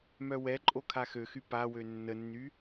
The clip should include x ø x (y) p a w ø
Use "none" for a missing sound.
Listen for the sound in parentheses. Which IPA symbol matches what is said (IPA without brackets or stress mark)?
y